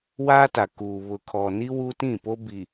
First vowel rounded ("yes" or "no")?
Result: no